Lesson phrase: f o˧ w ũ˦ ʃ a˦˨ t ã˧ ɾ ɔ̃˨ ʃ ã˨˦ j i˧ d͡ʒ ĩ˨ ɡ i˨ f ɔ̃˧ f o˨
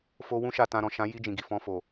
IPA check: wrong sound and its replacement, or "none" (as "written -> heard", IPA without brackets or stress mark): none